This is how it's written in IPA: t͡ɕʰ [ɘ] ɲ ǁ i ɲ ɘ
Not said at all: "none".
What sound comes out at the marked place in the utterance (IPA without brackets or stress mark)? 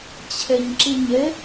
ɘ